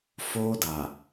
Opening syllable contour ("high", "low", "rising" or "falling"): high